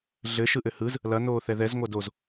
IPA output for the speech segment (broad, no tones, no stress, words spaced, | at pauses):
ɮɘ ʃɯʔɘhɯz | lɐ noːθɛðɛz ŋʷadoz